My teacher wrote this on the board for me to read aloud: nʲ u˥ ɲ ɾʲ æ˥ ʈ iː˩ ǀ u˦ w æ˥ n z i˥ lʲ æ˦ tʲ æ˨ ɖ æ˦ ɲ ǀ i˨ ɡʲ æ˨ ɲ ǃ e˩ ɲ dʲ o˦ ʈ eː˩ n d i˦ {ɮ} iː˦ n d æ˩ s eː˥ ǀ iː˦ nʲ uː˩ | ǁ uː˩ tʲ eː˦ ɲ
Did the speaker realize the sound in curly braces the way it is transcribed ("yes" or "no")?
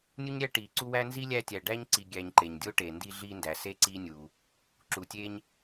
yes